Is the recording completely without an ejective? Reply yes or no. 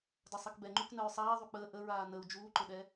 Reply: yes